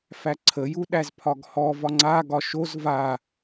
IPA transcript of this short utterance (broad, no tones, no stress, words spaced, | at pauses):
fæǀʰəju ɗæzpʰɒɡhɔ vɒŋ͡ǀaɡɒ ʃoz va